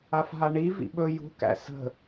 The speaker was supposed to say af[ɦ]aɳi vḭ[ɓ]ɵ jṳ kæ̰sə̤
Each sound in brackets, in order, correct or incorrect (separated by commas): correct, correct